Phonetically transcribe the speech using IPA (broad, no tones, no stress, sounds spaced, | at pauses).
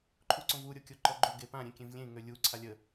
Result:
ǃʰ u ǀ õ v u ɾʲ o kʲ o ǃ ɔ ɡ͡ǃ o ɡ e p ã ɾʲ ẽ kʲ ẽ v lʲ ẽ ŋ ø lʲ u ǀʰ a lʲ ə